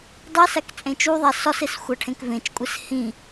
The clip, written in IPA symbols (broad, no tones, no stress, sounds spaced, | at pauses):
dˤ i s æ k t͡sʼ ẽ t͡ʃ u ðˤ æ s ɒ s e s xʷ æ ʈʰ ẽ k v ẽ t͡ʃ kʷʼ e s h ĩ